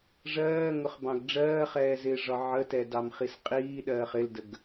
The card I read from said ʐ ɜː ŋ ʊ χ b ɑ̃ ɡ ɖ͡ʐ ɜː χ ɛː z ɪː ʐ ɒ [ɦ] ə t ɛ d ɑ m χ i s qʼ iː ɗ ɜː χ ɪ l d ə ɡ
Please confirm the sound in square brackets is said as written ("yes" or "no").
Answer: no